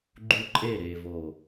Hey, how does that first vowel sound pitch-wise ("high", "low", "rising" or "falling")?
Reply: high